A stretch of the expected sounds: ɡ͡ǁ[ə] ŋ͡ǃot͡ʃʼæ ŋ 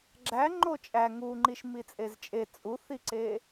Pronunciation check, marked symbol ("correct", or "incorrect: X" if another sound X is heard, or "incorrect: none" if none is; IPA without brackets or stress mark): incorrect: æ